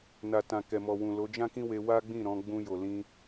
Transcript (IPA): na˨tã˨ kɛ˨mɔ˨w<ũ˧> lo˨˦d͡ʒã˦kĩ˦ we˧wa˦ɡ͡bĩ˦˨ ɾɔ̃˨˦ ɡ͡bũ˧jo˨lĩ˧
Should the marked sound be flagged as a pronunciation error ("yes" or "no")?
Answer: yes